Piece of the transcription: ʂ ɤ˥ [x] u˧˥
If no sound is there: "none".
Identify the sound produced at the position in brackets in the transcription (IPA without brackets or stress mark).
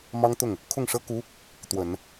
k